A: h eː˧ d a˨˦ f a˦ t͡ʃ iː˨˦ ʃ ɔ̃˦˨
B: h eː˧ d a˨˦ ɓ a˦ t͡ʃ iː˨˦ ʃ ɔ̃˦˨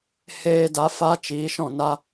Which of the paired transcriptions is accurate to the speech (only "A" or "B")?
A